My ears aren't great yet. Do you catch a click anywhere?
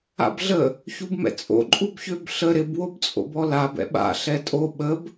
yes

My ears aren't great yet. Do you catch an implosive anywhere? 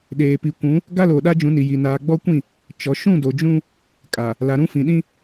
yes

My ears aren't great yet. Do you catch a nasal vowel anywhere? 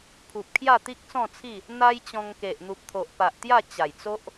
yes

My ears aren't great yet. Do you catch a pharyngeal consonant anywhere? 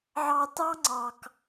yes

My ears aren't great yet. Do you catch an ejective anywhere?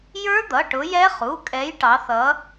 yes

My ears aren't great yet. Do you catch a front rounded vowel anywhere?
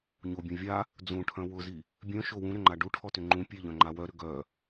yes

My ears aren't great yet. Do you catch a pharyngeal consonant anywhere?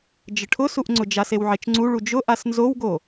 yes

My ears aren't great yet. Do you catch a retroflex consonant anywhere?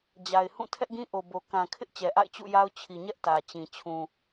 no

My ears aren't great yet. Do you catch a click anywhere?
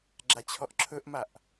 yes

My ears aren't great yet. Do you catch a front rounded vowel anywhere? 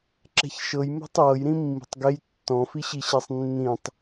no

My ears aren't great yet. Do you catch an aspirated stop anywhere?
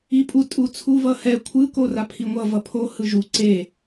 yes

